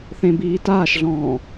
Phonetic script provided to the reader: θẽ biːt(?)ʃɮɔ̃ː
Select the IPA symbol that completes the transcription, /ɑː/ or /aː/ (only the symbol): aː